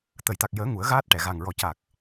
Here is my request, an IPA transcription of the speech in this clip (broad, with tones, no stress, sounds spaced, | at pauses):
t̪ ə˨˩˨ j t̪ a˨˩ k̚ j əː˨˩˦ ŋ u˨˩˦ ə̯ ɣ aː˦˥ t̚ ʈ ɛ˨˩˨ ɣ a˨˩ ŋ ɹ ɔ˨˩ c a˨˩ k̚